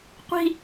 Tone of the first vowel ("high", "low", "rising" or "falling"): high